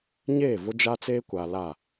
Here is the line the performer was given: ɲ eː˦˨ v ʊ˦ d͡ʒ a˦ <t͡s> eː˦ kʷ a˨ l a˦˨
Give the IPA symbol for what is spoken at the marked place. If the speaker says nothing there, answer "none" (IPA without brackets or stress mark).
t͡s